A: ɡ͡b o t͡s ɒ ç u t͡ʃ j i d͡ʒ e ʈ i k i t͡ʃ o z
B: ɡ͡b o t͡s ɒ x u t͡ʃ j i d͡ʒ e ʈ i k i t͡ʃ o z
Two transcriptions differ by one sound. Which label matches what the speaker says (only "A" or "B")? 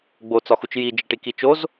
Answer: B